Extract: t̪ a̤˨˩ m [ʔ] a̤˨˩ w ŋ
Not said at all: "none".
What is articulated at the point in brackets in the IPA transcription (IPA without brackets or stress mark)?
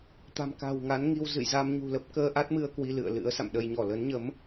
k